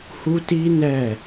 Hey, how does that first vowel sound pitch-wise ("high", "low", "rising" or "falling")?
high